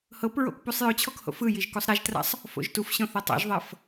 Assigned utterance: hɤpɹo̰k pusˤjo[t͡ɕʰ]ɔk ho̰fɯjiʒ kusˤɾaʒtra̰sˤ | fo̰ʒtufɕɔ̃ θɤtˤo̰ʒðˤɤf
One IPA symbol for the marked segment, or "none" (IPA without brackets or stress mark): t͡ɕʰ